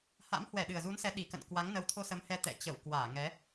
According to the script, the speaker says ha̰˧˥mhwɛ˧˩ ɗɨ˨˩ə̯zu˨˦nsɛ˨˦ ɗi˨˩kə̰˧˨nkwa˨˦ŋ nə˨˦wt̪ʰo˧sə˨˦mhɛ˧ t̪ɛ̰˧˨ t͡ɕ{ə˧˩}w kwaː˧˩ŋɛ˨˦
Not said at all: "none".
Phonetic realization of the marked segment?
ə˧˩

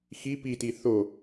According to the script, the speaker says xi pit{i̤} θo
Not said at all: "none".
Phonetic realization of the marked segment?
i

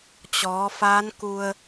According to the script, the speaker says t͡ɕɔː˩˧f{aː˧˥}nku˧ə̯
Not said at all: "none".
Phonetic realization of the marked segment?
aː˧˥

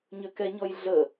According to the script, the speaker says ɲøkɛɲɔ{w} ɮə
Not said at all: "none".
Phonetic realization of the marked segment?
j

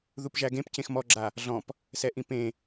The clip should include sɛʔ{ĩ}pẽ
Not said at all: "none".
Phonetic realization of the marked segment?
ĩ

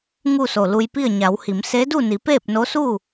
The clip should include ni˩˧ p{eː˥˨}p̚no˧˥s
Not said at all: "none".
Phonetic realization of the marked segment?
eː˥˨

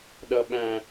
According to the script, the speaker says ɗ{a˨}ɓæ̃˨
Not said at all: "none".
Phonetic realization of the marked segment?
ʌ˨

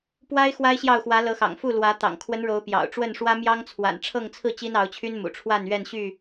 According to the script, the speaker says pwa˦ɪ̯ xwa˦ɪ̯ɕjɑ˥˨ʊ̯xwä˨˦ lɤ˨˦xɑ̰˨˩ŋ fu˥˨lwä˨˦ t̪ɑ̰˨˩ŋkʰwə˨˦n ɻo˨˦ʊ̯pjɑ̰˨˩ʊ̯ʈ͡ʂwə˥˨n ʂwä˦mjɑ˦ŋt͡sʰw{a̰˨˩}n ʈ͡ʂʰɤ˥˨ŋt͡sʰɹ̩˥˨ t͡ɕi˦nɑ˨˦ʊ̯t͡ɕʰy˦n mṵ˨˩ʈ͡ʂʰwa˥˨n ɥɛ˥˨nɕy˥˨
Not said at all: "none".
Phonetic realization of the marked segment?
a̰˨˩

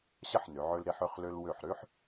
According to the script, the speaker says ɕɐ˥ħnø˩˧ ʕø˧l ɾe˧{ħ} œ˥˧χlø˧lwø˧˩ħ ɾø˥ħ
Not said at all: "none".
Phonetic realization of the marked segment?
ħ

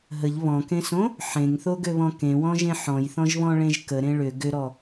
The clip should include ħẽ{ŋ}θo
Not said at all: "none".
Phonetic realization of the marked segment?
ŋ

